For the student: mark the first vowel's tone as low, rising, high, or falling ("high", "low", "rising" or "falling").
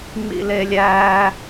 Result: high